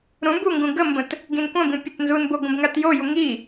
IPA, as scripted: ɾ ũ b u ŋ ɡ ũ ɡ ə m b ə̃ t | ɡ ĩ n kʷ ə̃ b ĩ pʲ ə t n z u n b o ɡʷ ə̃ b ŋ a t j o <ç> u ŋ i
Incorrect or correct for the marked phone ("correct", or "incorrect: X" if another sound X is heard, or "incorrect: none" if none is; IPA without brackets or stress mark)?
incorrect: j